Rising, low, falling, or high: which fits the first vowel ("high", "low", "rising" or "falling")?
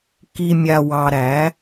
low